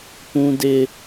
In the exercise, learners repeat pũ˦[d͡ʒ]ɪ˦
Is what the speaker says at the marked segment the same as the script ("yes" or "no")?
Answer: no